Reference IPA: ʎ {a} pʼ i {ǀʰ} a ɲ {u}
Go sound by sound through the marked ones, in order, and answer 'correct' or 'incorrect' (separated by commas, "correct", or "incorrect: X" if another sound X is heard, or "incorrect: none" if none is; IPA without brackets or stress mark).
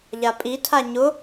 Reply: correct, incorrect: tʰ, incorrect: ʊ